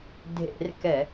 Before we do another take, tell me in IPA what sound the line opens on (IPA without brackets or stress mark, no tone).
dʱ